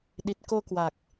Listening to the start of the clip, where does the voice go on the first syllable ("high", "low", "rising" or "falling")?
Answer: low